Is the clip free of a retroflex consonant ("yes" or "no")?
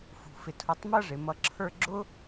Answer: no